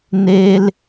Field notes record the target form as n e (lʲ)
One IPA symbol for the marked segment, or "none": l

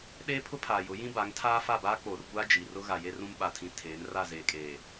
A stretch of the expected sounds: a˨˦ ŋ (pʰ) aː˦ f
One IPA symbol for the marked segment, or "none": tʰ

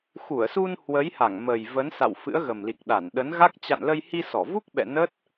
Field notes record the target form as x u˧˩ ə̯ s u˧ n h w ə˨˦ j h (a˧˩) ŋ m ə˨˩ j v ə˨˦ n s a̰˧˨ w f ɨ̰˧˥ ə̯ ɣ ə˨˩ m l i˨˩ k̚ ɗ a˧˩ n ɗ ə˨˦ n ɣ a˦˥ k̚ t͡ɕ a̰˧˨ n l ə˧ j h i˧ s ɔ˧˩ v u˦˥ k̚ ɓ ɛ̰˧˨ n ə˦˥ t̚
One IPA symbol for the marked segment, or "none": a˧˩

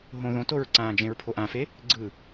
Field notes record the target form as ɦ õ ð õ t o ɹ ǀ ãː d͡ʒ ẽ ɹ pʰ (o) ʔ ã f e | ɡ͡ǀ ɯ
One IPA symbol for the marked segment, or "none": o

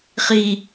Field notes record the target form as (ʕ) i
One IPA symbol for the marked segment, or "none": χ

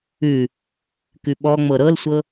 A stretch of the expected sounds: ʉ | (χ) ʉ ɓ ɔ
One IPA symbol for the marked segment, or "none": k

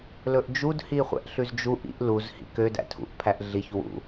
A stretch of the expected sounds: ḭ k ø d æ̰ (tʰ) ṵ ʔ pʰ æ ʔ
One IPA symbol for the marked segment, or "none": tʰ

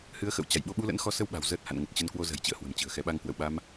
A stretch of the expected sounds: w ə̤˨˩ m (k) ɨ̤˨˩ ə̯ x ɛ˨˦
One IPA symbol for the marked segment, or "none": t͡ɕ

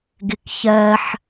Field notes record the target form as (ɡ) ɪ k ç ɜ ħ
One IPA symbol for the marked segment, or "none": ɡ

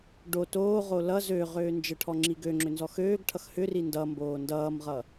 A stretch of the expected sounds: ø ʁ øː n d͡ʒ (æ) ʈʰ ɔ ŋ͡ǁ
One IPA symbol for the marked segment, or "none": ə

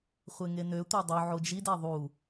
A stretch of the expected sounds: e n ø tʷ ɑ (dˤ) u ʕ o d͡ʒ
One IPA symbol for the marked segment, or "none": dˤ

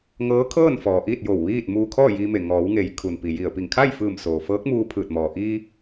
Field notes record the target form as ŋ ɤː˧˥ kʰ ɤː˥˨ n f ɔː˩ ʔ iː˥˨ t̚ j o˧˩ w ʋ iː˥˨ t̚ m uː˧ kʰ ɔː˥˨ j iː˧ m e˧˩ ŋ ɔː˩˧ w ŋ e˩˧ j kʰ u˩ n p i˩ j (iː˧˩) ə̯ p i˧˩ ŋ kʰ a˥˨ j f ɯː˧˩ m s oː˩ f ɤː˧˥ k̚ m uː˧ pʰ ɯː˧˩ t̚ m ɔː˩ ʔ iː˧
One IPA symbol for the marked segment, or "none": i˧˩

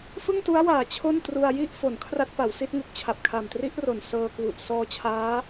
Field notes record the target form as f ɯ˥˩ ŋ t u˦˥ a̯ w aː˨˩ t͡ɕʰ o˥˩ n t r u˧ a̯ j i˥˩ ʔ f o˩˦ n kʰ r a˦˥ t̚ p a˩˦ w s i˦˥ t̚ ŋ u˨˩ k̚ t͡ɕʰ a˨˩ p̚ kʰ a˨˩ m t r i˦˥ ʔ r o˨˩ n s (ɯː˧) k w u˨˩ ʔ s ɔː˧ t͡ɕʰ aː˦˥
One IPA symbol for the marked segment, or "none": ɤː˧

